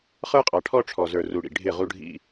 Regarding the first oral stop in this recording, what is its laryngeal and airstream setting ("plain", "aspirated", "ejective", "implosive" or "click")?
ejective